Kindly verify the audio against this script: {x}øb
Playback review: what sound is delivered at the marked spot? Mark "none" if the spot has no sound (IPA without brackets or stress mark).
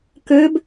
k